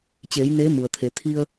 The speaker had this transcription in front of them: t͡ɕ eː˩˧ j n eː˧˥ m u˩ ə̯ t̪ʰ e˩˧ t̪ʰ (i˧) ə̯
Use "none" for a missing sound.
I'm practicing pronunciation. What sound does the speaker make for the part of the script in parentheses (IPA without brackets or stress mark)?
i˧